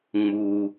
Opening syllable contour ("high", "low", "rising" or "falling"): high